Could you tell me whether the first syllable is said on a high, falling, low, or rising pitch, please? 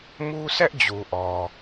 high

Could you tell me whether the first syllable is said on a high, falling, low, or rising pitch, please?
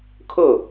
falling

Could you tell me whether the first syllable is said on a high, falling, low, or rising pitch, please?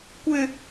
low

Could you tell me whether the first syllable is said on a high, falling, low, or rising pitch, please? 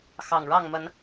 low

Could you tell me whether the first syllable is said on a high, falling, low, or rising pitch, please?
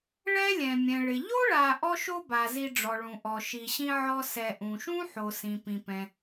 high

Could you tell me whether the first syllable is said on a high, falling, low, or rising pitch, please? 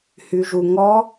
low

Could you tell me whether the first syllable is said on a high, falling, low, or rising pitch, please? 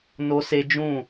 high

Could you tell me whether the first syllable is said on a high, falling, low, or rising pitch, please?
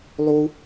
high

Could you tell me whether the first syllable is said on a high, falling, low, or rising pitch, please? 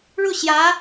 falling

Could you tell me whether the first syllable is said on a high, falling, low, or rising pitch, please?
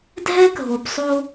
high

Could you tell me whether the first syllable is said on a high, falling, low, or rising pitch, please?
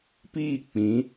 falling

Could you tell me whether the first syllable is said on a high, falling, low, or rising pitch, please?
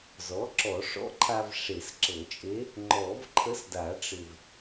rising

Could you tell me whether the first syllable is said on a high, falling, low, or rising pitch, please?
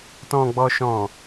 low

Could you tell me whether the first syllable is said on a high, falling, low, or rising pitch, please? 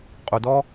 low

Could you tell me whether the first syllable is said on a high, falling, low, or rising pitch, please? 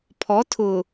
rising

